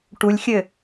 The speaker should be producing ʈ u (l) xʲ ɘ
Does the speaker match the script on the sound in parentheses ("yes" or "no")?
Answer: no